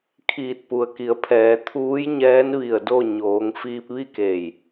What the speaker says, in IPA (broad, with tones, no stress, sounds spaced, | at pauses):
kʰ iː˧˩ t̚ p u˩ ə̯ k i˩˧ ə̯ pʰ ɛː˩˧ t̪ʰ uː˧˥ j ɲ ɛː˧˥ n ʋ i˧˩ ə̯ d o˥˨ ɲ oː˩˧ ŋ f iː˧ p̚ ʋ i˥˨ k eː˧˩ j